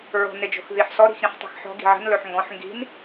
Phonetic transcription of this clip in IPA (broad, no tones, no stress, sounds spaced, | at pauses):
ɹ o̤ n ɪ d͡ʒ o̤ x ð i ħ s ɔ ɾ i̤ x ɾ ĩ ħ tˤ i̤ x ħ ɔ̤ ɡ i̤ ʕ ə̤ n l ɵ ħ ŋ ɡ ɔ̃ ħ ŋ ɡ i̤ n